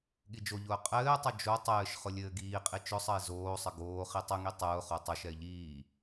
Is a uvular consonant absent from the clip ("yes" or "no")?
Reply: no